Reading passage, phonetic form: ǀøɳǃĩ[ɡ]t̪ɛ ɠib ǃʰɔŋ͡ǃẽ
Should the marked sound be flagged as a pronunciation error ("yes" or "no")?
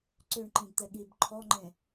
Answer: no